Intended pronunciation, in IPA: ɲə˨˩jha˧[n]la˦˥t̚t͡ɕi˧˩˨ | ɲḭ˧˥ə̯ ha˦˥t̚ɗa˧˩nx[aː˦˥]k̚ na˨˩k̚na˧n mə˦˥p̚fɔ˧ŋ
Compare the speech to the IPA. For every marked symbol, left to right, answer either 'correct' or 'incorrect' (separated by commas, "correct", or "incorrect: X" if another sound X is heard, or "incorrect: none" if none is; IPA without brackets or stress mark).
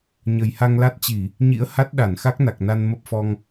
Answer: incorrect: ŋ, incorrect: a˦˥